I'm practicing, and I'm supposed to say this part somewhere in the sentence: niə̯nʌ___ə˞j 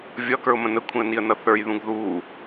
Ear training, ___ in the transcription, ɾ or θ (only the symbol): θ